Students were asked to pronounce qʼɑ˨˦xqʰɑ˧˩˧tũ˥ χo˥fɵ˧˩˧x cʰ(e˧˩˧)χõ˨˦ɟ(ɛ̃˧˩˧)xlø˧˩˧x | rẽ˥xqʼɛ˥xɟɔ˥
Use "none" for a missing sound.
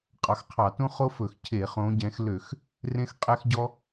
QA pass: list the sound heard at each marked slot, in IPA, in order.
e˧˩˧, ɛ̃˨˦

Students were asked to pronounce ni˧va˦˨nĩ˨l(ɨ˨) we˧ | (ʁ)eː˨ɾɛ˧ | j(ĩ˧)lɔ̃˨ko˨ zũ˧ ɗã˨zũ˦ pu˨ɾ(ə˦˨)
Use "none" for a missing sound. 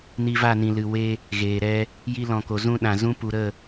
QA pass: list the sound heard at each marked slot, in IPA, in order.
ɨ˨, ɣ, i˧, ə˦˨

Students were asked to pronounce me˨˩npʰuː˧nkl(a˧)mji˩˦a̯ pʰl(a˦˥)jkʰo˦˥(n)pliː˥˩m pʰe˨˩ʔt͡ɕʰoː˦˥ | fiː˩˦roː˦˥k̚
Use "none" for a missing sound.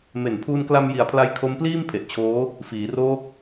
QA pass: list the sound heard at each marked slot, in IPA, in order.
a˧, a˦˥, m

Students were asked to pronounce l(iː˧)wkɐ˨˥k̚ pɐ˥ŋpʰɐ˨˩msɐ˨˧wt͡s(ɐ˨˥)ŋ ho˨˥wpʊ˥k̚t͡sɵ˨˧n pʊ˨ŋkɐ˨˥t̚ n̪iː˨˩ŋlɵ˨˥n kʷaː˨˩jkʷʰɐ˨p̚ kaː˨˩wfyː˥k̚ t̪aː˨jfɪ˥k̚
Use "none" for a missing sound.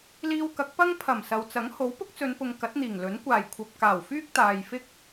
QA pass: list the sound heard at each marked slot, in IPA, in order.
iː˧, ɐ˨˥

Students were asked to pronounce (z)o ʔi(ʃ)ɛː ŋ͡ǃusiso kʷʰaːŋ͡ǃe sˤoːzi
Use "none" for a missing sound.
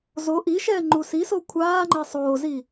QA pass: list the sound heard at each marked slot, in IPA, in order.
z, ʃ

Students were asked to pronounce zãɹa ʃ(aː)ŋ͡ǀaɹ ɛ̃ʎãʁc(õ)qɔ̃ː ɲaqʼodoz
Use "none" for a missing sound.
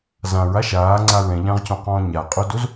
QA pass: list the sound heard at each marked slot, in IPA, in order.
aː, õ

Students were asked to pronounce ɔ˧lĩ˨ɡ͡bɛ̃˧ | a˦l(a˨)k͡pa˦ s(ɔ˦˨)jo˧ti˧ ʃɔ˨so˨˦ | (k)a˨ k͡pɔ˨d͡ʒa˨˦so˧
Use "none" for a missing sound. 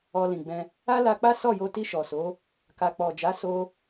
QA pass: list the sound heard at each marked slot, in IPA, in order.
a˧, ɔ˦˨, k

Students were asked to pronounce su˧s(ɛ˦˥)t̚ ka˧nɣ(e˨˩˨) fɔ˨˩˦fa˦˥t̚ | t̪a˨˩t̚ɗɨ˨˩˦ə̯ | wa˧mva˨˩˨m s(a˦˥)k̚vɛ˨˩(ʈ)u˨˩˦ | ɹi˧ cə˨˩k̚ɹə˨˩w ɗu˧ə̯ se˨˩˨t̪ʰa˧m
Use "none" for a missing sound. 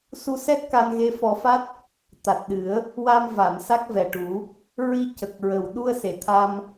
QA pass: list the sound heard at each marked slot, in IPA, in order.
ɛ˦˥, e˧˥, a˦˥, ʈ

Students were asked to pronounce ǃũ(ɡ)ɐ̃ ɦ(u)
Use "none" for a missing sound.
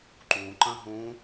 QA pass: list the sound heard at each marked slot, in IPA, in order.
ǃ, ũ

